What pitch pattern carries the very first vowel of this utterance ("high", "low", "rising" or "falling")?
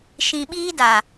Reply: low